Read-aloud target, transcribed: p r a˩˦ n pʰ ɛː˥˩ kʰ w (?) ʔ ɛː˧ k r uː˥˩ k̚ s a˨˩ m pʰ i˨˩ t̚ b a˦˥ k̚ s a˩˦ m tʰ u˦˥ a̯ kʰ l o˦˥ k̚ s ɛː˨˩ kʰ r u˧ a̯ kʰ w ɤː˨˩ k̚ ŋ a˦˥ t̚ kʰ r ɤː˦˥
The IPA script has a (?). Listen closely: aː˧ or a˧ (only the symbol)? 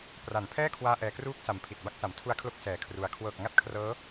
aː˧